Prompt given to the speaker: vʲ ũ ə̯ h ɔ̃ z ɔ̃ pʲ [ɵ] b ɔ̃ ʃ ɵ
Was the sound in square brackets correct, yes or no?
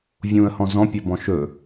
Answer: no